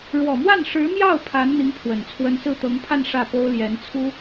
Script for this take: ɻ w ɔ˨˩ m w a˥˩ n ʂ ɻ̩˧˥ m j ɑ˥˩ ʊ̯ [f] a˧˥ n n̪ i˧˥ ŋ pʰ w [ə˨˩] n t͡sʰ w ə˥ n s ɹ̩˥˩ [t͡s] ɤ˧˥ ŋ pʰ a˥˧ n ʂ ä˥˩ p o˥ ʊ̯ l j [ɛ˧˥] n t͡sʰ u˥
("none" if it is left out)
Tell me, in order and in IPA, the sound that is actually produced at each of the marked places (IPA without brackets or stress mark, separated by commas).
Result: pʰ, ə˨˩, t̪, ɛ˧˥